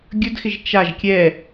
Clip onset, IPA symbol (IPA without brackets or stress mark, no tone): ɡʲ